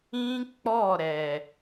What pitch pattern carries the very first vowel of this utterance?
high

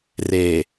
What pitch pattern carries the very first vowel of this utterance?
low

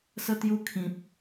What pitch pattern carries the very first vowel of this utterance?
high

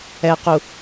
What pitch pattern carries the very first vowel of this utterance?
low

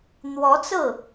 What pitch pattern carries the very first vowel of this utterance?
rising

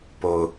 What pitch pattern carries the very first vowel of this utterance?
low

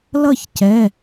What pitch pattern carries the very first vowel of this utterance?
falling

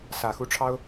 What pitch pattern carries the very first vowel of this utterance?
low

